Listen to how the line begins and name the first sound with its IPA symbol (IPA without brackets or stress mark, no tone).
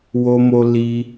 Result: w